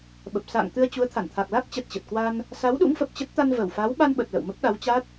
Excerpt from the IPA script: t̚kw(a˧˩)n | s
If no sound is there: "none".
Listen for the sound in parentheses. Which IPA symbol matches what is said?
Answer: a˧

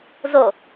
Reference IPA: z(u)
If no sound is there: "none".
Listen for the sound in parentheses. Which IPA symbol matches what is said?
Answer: o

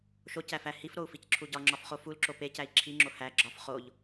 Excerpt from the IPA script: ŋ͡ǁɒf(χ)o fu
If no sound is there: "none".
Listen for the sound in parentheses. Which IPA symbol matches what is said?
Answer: χ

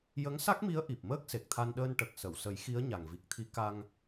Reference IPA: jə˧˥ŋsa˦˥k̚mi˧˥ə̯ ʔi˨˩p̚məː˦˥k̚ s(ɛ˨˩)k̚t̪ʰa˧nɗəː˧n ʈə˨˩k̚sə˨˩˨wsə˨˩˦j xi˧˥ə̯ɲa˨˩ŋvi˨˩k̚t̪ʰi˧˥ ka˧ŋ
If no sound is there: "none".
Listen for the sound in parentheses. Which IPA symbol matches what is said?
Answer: e˨˩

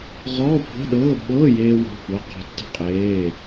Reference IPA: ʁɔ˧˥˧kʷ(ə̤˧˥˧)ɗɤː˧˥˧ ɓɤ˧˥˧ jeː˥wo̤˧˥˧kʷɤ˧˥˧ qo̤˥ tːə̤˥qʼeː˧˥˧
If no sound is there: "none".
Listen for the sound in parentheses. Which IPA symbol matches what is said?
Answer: ə̤˧˥˧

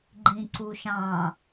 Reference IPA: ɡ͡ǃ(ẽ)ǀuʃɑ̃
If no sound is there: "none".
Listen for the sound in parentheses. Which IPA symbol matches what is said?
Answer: ĩ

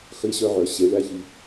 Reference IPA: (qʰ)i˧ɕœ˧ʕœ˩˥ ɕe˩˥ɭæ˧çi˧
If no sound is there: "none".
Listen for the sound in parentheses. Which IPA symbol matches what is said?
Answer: χ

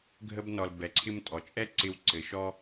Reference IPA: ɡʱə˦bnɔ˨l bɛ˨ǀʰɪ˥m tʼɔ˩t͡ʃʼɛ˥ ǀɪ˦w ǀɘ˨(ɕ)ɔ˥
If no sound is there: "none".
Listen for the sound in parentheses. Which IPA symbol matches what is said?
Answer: ʃ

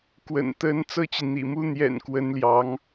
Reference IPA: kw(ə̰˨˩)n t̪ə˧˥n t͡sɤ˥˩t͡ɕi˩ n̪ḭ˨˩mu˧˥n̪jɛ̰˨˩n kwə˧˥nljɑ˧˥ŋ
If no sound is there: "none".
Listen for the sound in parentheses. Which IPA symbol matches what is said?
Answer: ə̰˨˩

